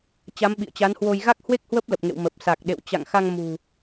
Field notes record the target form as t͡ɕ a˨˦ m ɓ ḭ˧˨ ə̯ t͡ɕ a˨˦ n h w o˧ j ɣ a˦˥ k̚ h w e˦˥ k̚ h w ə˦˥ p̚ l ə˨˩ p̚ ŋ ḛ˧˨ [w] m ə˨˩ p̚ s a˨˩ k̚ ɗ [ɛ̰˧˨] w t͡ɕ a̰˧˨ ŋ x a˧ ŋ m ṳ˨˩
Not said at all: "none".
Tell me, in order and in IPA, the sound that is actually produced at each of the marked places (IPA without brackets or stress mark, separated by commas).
w, ḛ˧˨